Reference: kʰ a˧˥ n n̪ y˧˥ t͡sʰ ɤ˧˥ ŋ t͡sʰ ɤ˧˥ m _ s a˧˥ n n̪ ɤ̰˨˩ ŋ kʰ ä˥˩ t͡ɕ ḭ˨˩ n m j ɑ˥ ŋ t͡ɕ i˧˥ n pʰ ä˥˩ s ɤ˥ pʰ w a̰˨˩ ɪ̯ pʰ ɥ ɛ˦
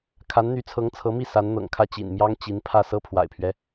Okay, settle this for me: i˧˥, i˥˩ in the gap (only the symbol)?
i˥˩